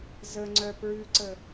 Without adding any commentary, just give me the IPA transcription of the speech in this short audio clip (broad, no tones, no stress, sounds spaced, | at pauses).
z ə ŋ͡ǀ œ p ɹ ʉ ǀ ə